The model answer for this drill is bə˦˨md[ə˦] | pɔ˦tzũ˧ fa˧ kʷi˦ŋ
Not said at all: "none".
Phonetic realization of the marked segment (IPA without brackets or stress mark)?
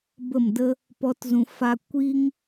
ə˦